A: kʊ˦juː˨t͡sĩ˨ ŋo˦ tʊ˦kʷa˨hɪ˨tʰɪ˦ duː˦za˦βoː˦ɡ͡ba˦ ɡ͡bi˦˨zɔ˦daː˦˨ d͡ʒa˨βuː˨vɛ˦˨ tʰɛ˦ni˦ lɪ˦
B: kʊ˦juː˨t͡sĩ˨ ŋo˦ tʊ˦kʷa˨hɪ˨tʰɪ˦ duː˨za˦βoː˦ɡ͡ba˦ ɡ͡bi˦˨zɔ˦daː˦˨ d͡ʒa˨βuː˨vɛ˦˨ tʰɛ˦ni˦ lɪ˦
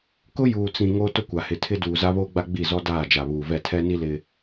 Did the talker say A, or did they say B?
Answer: B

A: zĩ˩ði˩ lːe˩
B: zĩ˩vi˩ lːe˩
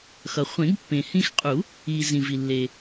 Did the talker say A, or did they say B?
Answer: B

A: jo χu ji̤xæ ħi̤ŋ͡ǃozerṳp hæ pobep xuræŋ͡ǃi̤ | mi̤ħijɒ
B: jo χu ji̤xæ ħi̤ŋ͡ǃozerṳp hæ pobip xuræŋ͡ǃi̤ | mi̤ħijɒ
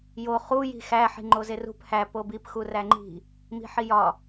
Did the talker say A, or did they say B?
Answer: B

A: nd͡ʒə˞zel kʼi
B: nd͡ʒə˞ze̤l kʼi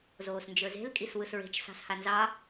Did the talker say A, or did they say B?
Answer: B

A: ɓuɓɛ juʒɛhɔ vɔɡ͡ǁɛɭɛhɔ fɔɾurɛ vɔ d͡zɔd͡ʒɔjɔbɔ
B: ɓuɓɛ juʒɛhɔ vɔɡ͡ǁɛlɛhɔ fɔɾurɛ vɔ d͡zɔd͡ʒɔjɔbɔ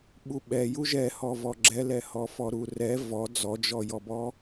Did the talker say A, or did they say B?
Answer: B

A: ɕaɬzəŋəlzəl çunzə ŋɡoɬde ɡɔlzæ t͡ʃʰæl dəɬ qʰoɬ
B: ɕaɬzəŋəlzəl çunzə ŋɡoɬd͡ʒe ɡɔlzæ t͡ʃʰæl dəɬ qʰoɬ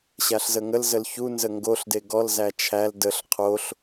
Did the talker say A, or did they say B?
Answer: A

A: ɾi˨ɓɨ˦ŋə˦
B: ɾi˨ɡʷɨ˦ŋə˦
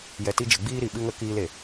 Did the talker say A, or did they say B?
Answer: A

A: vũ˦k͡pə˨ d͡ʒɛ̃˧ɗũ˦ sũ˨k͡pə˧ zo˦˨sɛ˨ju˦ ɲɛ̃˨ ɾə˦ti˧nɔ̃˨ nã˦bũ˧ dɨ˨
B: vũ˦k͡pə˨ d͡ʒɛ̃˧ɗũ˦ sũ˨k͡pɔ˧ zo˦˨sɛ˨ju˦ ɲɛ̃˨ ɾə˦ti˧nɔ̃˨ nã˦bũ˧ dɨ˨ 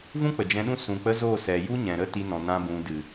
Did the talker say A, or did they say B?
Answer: A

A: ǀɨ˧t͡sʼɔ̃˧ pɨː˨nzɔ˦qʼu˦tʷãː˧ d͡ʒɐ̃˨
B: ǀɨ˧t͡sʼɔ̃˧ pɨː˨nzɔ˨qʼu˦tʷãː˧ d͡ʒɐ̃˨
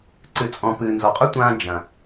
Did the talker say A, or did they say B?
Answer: B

